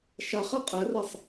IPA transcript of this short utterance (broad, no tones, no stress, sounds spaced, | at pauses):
ʃ a χ ɛ qʼ ɛ r ɛ sˤ